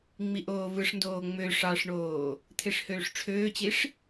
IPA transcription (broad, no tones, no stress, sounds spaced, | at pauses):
ŋ͡m i ʔ oː v ɯ ʂ n d oː ŋ͡m ø ʂ ɑ ʂ ɳ oː | t̪ʰ e ʂ h øː ʂ ʈ͡ʂʰ øː t͡ɕ i ʂ